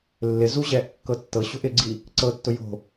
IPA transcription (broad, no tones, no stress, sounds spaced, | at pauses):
lː ɪ z u ʑ ɛː ʔ kː ɤ tː ɤ ɕ o̤ ʔ ɪ ɡ͡ǀ i | ǀ ɤ tː ʊ j o̤